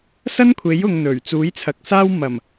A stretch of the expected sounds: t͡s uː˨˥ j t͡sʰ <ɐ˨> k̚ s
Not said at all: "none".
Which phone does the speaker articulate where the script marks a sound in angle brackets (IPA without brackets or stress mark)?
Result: ɐ˨